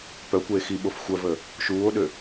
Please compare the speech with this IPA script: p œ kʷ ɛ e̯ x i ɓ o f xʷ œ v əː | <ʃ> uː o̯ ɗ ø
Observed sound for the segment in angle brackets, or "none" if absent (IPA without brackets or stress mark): ʃ